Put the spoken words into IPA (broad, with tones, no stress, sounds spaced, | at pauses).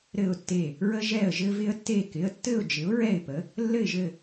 ɾ ɘ˦˨ ʊ̯ tː e˦˨ | ɹ ə˦ ʒ ɛ˦˨ ə̯ ʒ ɘ˦ v ɪ˦ ə̯ tː e˦˨ k ɪ˩˧˩ ə̯ tː ɘ˦˨ ʊ̯ d͡ʒ ɪ˨˥ ʊ̯ ɹ ɛ˦˨ ɪ̯ p ə˨˥ | lː ɘ˦˨ ɪ̯ ʒ ɘ˦˨